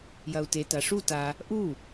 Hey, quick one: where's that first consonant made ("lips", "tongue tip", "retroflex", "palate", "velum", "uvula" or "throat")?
palate